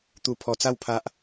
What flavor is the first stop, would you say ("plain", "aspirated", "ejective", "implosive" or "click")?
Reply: plain